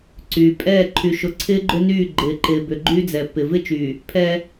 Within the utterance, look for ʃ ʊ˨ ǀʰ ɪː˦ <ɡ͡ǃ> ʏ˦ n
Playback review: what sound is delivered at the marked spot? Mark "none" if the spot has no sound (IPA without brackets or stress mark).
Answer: ɡ͡ǃ